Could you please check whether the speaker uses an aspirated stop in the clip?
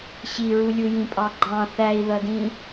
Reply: no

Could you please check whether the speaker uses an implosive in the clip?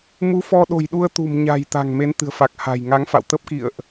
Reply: yes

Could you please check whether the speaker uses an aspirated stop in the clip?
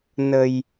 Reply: no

